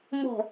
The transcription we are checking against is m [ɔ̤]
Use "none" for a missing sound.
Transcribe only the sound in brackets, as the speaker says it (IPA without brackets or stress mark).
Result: ɔ̤